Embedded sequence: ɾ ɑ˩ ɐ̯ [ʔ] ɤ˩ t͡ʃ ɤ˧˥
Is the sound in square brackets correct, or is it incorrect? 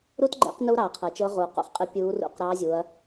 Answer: incorrect